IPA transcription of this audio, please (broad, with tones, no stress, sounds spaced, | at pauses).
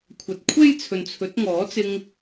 kʷʰ ɐ˨ t̚ kʷʰ e˥ j t͡sʰ ɵ˨ n t͡sʰ ɵ˨˥ t̚ ŋ ɔː˨˥ t͡s ɪ˧ ŋ